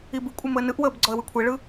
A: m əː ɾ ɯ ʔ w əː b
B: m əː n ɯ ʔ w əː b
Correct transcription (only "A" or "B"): B